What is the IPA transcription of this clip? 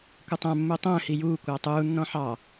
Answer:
kʷ ɪ tˤ æ̃ mː u tˤ ə̃ː h i j uː kʷ æ tˤ uː nː ɔ̃ ħ ɑ

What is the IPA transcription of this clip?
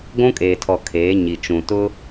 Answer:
ɡʷ ũ˦ kʼ eː˨ tʰ ɔ˨ kʰ eː˨˦ ɲ i˨ t͡ʃ ũ˨ t ʊ˦

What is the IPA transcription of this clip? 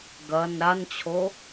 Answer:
ɡ ɐ n ɾ a n t͡ɕʰ o

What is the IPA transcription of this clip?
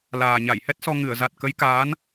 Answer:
l aː˨˩ ɲ a˧˩ j h ɛ˦˥ t̚ s ɔ˧ ŋ ɨ˧˩ ə̯ z a˨˩ t̚ k ə˨˦ j k aː˨˦ n

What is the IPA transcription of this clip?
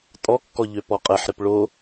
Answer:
tʼ ɔ kː ɔ ʎ ø p ɔ qʼ ɛ ħ ɾ ɪ p ɭ o

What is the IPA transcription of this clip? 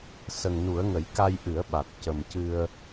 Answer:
s ə˨˩ ŋ n u˨˩˦ ə̯ ŋ ə˨˩˦ j k a˧ j ʔ ɨ˨˩˦ ə̯ ɓ a˨˩ t̚ c ə˨˩ m c ɨ˧ ə̯

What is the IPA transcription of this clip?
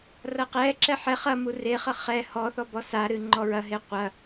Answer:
r ɐ q ɛ ǁ ɛ ħ ɛ χ ɐ m u r e χ ɐ χ ɛ h ɔ θ ɔ b ɔ s a ɾ ɨ ŋ͡ǃ ɔ ɹ ɐ ɦ e qʷ ɐ

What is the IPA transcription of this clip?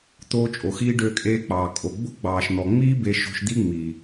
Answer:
t̪ oː˧ t͡ʃʼ o˨ x iː˧ ɖ ø˧ kʼ eː˧ k͡p ɑː˨ kʼ o˨ ɡ͡b o̤˦ ɡ͡b ɑː˨ ʃ n̪ ɔ˨ ŋ͡m iː˦ b e˧ ʃ o̤˧ ʃ d̪ i˦ ŋ͡m i˨

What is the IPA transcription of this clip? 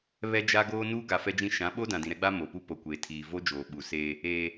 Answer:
β ɛ˦ d͡ʒ a˦ ɡ oː˦ n uː˦ ɡ a˨ f ɛ˦ d͡ʒ ĩ˦ ʃ ã˨˦ ɓ o˦ d ã˨ d ĩ˨ ɾ ɛ˦ ɡ͡b a˦ m o˨ p u˦ p o˨ kʷ eː˨ tʰ iː˨ v o˦ d͡ʒ oː˨ ɓ u˨ s eː˦ | eː˦

